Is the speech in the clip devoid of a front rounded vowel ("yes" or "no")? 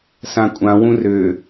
no